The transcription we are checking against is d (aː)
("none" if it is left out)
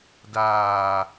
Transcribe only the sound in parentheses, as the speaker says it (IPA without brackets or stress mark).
aː